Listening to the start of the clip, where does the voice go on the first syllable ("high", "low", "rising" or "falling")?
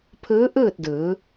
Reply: rising